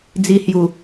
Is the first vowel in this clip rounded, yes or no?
no